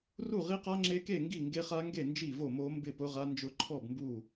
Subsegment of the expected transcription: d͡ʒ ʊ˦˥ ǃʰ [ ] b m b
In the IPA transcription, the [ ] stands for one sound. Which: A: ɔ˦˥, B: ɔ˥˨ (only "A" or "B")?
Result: B